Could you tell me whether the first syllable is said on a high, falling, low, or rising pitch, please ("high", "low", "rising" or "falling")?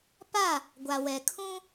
falling